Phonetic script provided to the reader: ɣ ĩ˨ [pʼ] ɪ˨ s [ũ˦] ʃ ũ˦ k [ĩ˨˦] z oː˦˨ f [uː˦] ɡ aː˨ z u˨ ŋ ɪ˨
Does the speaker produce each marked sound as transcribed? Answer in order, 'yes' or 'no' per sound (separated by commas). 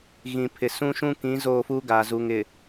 no, yes, yes, no